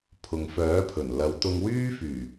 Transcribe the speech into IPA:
pʰʊ˨ŋfœː˨˥pʰɵ˨˩n lɐ˨˧wt̪ʊ˧ŋwyː˥fyː˨˩

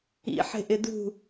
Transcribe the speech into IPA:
ḭħe̤ʔɪ dṳ

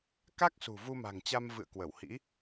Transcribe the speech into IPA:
ka˦˥k̚sṳ˨˩ vu˧ma̤˨˩ŋt͡ɕa˧m vɨ̰˧˨ə̯kwə˧˩whḭ˧˥

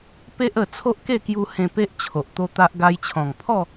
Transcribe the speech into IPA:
pe˦ʔə˨˩ t͡sʰo˦ʔke˥˧kju˧ hẽ˧pe˦ʔ t͡ɕʰo˨ʔt̪o˦t̪a˦ʔ ɡa˧jt͡ɕʰɔ̃˨˩ŋpʰɔ˥˧

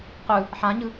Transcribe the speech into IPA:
qɯ | ħãɲɯ

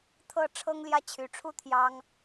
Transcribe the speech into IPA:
t̪ʰɤ˥˨ ʈ͡ʂʰɤ˦ŋljä˦t͡ɕʰy˨˩ʈ͡ʂʰu˥˨ t̪ʰjɑ˦ŋ

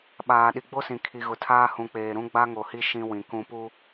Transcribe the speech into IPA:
ɓaː˨ɗi˨ɡ͡bo˦sĩ˨ kʰi˨ɣʊ˨tʰaː˦ hũ˨k͡peː˨ ɾũ˦ ɡ͡ba˦ŋo˨hi˦ ʃĩ˦wĩ˨kũ˦ pu˦

